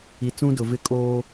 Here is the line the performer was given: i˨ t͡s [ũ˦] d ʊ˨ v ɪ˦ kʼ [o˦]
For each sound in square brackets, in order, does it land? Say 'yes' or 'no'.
yes, no

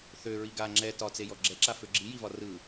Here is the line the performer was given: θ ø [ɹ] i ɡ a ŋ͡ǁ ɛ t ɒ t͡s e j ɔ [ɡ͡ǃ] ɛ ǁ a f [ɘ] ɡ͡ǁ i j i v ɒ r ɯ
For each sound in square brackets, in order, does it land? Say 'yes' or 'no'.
yes, no, no

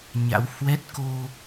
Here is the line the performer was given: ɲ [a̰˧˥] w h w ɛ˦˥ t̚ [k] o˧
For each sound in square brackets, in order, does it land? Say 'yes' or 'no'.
yes, yes

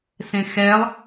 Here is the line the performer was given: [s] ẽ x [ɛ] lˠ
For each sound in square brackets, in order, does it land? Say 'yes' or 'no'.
yes, yes

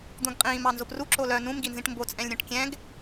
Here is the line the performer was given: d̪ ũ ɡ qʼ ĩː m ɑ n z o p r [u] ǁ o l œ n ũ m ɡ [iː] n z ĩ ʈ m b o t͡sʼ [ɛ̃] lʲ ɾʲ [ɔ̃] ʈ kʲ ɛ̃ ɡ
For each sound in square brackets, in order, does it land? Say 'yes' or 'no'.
yes, no, yes, yes

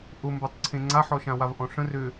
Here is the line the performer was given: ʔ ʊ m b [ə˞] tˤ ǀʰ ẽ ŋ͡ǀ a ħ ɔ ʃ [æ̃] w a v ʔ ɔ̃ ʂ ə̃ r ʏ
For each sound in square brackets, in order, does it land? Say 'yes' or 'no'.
yes, no

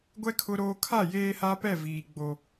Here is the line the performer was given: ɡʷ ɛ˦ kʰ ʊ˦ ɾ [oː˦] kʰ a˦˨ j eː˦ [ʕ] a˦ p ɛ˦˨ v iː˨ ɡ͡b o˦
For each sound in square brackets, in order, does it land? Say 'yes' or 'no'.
yes, no

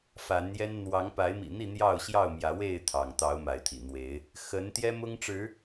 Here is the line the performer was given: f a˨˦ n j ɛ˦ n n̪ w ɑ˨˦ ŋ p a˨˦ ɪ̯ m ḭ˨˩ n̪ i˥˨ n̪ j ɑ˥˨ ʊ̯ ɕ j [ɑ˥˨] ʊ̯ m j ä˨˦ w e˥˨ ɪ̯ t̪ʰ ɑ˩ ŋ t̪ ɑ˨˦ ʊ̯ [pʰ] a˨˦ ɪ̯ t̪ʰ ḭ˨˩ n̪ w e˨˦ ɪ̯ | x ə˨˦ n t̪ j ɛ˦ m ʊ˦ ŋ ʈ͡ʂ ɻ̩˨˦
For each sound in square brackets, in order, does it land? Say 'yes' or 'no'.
yes, no

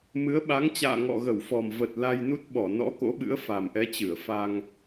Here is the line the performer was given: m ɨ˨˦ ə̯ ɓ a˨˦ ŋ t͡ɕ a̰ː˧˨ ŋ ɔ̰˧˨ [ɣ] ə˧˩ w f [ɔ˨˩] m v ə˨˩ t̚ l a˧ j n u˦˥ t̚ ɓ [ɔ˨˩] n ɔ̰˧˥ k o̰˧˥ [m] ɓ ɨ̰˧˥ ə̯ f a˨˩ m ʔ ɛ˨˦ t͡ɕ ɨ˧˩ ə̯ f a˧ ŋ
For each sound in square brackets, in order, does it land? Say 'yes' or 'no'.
yes, yes, no, no

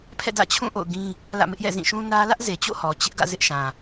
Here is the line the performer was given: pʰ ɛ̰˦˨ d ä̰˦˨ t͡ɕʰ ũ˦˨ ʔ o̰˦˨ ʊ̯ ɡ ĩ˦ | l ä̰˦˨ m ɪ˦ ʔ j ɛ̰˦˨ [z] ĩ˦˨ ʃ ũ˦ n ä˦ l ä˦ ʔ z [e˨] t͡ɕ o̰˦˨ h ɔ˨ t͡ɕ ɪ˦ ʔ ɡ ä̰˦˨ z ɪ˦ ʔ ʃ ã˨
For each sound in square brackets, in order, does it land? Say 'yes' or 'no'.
yes, yes

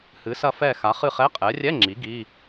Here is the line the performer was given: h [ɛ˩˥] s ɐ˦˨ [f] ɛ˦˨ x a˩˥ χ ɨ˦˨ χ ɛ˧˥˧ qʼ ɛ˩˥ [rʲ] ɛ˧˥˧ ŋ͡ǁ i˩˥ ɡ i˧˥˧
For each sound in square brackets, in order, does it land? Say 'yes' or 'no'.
no, yes, yes

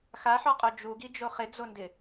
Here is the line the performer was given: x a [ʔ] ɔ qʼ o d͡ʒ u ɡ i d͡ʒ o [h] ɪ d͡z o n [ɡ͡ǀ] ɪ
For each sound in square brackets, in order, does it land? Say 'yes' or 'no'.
no, no, no

